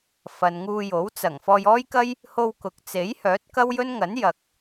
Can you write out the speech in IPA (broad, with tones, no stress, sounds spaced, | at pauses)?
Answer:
f ɐ˨ n ŋ uː˧ j o˨˥ w t͡s ɐ˨˩ ŋ f ɔː˧ j ɔː˥ j k ɐ˥ j | h o˧ w k ʊ˨ k̚ t͡s e˨˥ j h œː˨˥ t̚ k ɐ˥ w j ɵ˥ n ŋ ɐ˨˥ n j ɐ˨ k̚